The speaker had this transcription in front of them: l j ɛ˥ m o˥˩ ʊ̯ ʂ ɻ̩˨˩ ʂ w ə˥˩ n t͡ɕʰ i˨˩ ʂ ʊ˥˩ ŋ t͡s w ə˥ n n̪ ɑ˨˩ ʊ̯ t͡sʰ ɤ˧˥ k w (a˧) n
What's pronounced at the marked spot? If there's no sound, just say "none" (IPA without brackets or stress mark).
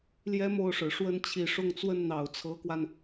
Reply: a˧